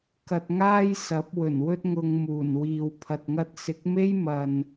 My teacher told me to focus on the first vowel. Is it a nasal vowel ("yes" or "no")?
no